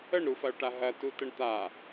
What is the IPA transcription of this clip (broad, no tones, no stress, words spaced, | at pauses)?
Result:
əɳɾufɐʊ̯ʈa ɦɐtutəɳ t̪a